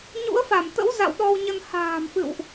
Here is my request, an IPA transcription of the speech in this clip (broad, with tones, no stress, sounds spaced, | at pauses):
ɲ ṵ˧˥ ə̯ f a˧˩ m t̪ ə̰˧˥ w z a̰˧˨ w ɗ ɔ˧ w ɲ ə˧ n h a̤ː˨˩ m f ɨ̰˧˨ w ʔ